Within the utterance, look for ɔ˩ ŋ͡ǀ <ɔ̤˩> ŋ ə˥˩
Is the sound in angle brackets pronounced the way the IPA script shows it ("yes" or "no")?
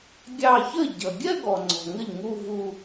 yes